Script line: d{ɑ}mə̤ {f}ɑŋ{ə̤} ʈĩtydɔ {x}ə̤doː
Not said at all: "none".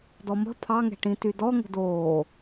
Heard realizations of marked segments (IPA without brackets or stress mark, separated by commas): ɔ, pʰ, ɛ̤, ŋ